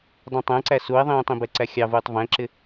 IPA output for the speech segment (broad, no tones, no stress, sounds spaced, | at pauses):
dˤ ĩ tˤ æ̃ ǀ æ s u e̯ ðˤ ĩː tˤ ĩ b ɛ ǀ æ xʲ ɑ v uː tˤ v æ̃ ǁ ɪ